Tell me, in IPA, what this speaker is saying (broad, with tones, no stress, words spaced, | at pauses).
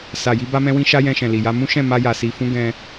sa˨ji˧ ba˦mɛ̃˦wĩ˦ ʃa˦jɛ̃˧ʃɛ̃˨li˨ ja˧ mũ˦ʃɛ̃˦˨ ma˧ja˨si˨fũ˧ ɡɛ̃˧